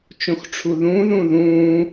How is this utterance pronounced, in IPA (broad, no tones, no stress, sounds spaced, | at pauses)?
t͡ʃ õ x ʈ͡ʂʰ u ð ũː ð ũː ð ũː